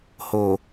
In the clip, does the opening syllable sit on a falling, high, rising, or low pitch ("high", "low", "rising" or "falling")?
low